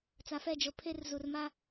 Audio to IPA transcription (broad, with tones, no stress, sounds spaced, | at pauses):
t͡s a˨ f ɛ˦˨ d͡ʒ o˨ pʰ e˦ r z u˨ r m a˦